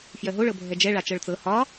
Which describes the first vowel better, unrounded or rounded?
unrounded